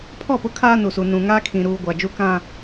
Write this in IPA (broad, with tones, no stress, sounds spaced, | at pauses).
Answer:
pʰ ɔ˦˨ p ʊ˦ kʰ aː˦ n u˨ s u˨ n ũ˨ ŋ aː˦ kʰ ĩ˨ ɾ uː˨ ɡʷ a˨ d͡ʒ u˦ k ã˦